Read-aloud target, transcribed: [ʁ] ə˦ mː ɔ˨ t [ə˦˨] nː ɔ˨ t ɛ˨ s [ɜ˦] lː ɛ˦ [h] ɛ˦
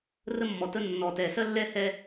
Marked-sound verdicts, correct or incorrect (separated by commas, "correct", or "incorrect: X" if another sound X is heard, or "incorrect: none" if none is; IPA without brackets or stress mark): incorrect: r, incorrect: ə˦, correct, correct